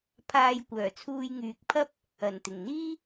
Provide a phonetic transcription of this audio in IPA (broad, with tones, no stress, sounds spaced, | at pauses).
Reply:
pʰ aː˧ j kʷ œː˨˩ t͡sʰ uː˧ j ŋ yː˨ k̚ pʰ ɐ˥ p̚ | ɐ˨˩ n t̪ ɪ˨˩ ŋ n̪ iː˥